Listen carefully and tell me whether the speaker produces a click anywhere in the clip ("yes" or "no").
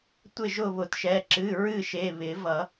yes